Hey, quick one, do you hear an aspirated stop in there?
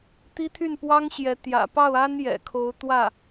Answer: yes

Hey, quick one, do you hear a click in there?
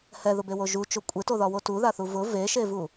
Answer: no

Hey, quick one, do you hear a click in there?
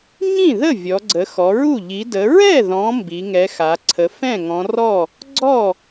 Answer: yes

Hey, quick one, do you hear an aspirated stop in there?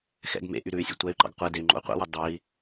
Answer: no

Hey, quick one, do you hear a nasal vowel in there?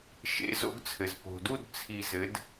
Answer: no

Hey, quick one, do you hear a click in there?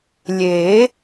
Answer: no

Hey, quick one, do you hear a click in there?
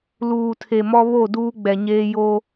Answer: no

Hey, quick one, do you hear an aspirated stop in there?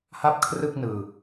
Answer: yes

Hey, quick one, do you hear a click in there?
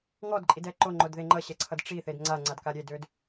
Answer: yes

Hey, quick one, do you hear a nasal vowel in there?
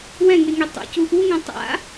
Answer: yes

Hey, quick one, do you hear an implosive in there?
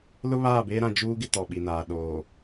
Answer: yes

